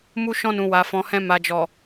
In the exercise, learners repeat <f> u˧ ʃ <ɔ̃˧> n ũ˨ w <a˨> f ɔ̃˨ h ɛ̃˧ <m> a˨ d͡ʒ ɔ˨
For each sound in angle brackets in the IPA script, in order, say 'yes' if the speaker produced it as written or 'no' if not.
no, yes, yes, yes

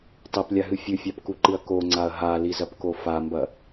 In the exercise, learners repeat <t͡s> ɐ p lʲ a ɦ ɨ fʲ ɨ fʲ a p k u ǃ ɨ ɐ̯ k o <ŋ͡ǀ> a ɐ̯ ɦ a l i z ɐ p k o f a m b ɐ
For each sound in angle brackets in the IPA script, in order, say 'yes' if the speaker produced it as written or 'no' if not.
no, yes

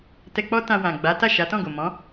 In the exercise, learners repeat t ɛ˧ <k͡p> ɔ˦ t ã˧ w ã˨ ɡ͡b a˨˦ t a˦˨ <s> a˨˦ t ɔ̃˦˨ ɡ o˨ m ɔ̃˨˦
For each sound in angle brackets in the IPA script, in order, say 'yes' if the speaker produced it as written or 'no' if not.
yes, no

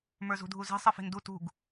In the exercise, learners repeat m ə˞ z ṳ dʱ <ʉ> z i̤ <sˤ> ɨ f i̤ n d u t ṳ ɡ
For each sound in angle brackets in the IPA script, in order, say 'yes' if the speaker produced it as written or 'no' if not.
no, yes

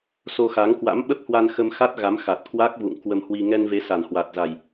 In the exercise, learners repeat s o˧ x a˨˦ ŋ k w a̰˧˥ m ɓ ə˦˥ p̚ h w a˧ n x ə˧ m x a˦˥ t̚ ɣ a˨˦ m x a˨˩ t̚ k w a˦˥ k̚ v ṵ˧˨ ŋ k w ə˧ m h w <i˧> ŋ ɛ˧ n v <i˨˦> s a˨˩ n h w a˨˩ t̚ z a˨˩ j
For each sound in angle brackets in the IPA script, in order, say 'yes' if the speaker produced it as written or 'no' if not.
yes, no

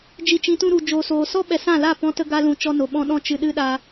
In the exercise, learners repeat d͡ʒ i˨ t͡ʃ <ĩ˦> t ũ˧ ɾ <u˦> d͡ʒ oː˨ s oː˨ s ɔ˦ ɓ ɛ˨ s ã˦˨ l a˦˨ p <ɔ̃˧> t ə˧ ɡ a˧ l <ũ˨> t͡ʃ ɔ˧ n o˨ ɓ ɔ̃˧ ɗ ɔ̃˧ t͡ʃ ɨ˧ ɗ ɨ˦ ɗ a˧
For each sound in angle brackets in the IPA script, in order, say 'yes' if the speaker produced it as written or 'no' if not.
no, no, yes, yes

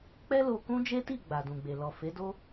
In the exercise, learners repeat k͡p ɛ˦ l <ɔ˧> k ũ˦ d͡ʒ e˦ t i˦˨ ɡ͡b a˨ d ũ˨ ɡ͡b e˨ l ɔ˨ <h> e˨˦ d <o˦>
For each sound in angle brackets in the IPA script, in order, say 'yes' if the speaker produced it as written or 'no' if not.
no, no, yes

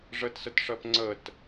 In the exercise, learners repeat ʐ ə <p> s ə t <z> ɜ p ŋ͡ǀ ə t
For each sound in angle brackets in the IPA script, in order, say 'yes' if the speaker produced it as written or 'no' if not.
no, no

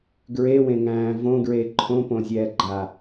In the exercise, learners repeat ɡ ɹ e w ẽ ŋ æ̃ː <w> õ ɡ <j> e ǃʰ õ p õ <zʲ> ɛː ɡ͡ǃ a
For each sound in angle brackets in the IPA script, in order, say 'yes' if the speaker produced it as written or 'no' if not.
no, no, yes

